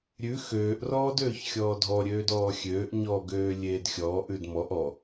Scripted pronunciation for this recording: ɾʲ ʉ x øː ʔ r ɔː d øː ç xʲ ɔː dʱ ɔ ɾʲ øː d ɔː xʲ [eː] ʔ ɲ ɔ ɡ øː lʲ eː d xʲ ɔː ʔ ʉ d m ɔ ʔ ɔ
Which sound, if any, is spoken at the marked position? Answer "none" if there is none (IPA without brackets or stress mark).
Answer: øː